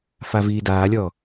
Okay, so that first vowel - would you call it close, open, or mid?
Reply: open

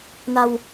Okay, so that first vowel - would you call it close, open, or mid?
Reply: open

